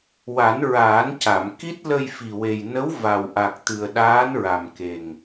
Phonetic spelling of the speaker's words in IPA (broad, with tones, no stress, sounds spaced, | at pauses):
w a˨˩˦ n ɹ aː˨˩˦ n c a˨˩˨ m k i˦˥ t̚ l ə˧ j f i˨˩ w e˨˩ j n ə˧˥ w v a˨˩ w ʔ a˨˩ k̚ t̪ ɨ˨˩ ə̯ ɗ aː˧˥ n ɹ a˨˩ m k e˨˩ ŋ